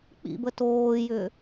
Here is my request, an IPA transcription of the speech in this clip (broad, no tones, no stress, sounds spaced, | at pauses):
k͡p ḭ b ə t oː j ʏː